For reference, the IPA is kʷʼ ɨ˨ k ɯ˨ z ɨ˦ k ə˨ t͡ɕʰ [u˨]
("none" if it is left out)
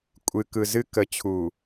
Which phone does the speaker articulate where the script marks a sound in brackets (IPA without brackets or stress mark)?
u˨